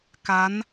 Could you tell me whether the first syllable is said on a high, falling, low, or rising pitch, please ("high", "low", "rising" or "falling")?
rising